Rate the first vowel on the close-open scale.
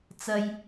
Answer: open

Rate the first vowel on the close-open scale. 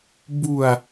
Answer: close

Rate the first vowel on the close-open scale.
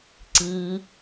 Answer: close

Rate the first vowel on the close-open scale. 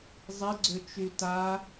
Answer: close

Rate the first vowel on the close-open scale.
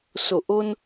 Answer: mid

